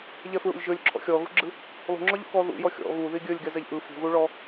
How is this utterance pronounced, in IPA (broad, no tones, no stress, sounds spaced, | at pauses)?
ʎ ɛ f ɹ ṵ lʲ ʒ ɵ lʲ ǁʰ ɔ̰ xʲ ɔ ɣ ṳ ɡ͡ǁ ɯ | lˠ ṳ ŋ͡ǁ ɔ ʎ ṵ k ɔ ð ṵ j ɔ xʲ ɔ̰ ɣ u ð i ɡʲ ɵ lʲ ɡ ɛ z ɛ ʎ ʔ ɯ f ṳ ɣ u ɭ ɔ